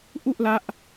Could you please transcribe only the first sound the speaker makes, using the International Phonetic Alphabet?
ʔ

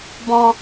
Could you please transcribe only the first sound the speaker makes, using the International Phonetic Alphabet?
b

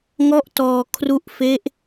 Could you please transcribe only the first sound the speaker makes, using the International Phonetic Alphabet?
ŋ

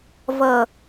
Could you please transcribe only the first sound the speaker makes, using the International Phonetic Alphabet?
v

